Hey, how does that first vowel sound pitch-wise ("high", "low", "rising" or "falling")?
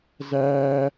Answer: high